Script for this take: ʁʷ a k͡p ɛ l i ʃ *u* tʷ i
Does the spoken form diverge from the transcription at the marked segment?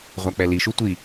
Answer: no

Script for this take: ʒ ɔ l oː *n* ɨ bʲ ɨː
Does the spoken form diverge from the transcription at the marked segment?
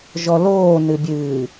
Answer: no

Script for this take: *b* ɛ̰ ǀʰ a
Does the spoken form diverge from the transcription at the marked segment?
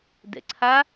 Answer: yes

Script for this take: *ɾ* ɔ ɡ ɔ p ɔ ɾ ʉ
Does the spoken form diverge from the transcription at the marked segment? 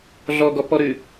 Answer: yes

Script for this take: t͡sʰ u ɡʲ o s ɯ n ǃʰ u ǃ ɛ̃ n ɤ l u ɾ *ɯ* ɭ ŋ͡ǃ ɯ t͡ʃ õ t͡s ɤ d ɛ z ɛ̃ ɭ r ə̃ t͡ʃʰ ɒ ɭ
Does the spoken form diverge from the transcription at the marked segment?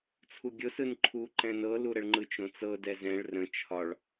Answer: yes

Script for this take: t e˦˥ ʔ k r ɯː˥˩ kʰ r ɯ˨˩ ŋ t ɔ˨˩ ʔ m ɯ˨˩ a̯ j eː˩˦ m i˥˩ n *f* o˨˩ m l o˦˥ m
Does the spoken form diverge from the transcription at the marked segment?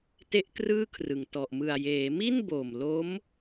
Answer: yes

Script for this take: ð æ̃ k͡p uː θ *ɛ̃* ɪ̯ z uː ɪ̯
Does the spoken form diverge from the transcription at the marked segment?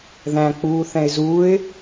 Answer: no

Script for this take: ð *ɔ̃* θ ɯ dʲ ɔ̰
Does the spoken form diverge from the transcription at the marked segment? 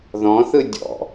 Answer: no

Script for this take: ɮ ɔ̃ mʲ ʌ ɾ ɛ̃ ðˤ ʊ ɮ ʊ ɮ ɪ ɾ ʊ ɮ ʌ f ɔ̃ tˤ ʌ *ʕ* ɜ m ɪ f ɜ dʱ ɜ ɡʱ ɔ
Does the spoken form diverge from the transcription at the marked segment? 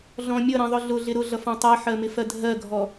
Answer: yes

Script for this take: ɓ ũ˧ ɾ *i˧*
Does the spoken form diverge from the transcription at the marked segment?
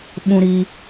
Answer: no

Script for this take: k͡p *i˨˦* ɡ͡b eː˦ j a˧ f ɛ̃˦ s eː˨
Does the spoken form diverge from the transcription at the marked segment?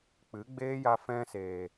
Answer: yes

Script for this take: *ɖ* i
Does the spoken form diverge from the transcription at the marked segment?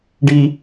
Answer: no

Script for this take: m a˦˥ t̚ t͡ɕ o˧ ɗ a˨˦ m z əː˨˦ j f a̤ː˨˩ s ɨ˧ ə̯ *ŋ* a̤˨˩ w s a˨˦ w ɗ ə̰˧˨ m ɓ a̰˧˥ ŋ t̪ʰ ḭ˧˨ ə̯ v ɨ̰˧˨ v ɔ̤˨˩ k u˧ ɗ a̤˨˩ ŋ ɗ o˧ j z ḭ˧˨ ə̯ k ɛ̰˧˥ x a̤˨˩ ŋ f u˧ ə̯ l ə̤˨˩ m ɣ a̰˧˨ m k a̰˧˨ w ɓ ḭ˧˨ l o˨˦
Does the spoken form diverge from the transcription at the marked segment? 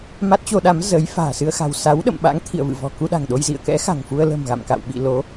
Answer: yes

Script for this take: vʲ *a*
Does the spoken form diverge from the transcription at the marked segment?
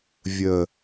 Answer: yes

